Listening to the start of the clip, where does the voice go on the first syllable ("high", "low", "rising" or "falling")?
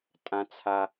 high